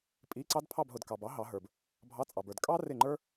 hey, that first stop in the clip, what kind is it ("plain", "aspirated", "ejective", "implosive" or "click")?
ejective